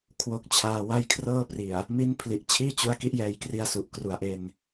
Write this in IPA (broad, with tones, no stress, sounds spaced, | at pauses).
kʰ w o˦˥ k̚ t͡ɕʰ aː˧ w a˥˩ j kʰ r ɤː˥˩ p r i˨˩ a̯ | m i˦˥ n pʰ l i˨˩ ʔ t͡ɕʰ iː˥˩ t͡ɕ u˦˥ a̯ k i˦˥ ʔ j ɛː˧ j k r i˧ a̯ s u˨˩ ʔ k r u˨˩ a̯ ʔ e˧ n